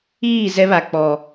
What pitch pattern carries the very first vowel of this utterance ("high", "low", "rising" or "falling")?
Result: falling